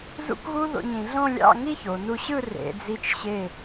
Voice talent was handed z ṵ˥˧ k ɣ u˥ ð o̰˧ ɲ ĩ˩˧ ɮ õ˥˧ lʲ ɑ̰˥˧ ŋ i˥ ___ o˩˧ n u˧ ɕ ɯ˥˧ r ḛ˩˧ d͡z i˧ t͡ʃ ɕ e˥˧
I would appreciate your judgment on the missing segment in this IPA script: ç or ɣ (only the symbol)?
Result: ç